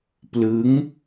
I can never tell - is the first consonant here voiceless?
yes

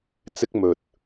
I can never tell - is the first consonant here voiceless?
yes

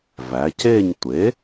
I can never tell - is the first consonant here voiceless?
no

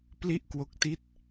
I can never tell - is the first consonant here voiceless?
yes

